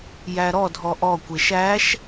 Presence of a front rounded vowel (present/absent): absent